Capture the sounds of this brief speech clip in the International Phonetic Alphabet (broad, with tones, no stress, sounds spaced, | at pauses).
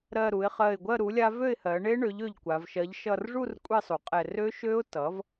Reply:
ɾ ɜ˧˩ ɾ u˩˧ ɪ̯ χ ɜ˧˩ ɪ̯ ɡʷ ɜ˥˨ ɾ u˩˥ lʲ a˦˥ v ø˥˨ ɪ̯ h ɜ˩˧ ɳ e˦˥ ɳ ø˩˥ ʎ ø˧˩ ʎ kʷ a˩˧ v ʃ ɜ˩˧ ʎ ʃ ʌ˧˩ r ʐ u˥˨ r kʷʼ e˥˨ sˤ u˩ qʼ ɛ˧˩ r ø˦˥ ʃ ø˦˥ ʊ̯ t ʌ˩˥ v